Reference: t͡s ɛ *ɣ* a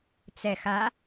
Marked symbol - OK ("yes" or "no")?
no